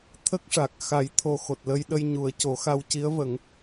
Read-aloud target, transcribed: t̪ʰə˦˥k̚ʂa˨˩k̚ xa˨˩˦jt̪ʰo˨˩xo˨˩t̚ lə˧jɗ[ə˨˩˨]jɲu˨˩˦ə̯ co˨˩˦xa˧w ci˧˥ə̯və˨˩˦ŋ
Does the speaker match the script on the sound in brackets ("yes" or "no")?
no